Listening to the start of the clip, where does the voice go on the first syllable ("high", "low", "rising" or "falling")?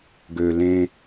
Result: low